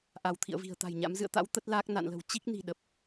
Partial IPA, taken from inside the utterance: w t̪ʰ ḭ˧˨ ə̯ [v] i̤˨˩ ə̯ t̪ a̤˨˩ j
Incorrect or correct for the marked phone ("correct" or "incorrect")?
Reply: correct